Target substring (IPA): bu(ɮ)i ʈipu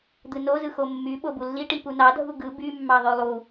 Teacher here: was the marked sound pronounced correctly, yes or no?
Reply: no